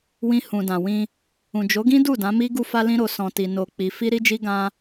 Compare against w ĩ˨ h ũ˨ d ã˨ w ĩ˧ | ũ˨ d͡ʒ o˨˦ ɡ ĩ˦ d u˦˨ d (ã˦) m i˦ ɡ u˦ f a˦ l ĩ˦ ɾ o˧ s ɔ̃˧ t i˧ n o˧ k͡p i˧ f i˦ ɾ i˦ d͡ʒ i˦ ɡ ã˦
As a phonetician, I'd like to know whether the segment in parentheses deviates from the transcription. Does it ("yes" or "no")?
yes